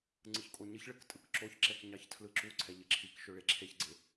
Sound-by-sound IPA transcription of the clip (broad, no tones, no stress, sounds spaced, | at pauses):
ŋ͡ǀ ɯ ç kʼ o ɲ ɘ ç ɭ ɘ k tʼ ɯ k ǁ o ç ǁ ɛ k ɲ ɑ ç tʰ l ɯ ǁ u ǀʰ ɛ ʎ ɘ ǁʰ i k ʃ ɵ ɭ e ǁʰ e ç ɡ͡ǀ e